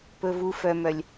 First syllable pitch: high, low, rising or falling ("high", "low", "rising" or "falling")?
low